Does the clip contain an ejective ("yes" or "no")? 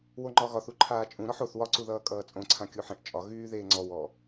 yes